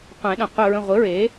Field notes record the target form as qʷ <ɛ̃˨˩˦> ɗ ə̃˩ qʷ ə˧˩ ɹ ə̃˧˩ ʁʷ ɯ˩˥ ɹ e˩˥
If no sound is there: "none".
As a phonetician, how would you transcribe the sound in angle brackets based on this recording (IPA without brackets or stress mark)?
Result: ɛ̃˨˩˦